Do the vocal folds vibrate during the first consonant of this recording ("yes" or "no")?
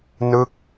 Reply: yes